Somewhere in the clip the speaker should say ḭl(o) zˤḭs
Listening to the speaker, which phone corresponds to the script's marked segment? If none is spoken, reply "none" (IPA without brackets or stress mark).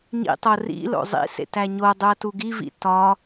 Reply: o̰